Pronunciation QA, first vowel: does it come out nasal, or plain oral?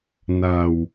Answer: oral